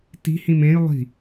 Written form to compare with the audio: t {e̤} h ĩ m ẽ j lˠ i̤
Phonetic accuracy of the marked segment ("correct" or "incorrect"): incorrect